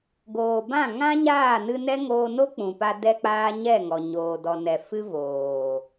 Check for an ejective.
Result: absent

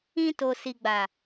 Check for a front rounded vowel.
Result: absent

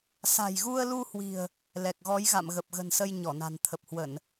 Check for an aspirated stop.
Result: present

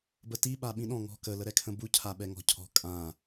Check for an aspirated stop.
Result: present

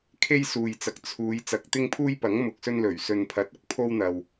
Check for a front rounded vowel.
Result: absent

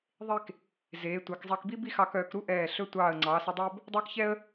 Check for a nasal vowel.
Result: absent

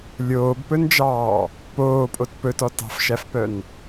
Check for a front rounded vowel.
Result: present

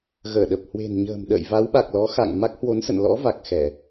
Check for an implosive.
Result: present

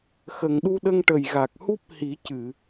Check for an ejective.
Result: absent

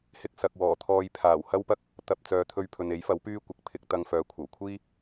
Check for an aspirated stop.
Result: present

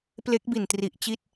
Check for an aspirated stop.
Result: absent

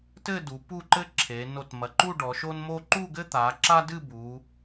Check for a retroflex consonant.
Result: present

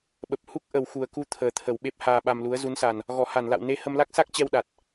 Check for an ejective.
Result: absent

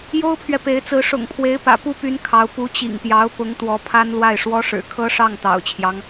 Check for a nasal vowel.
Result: absent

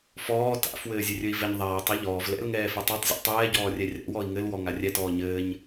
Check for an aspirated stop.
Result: absent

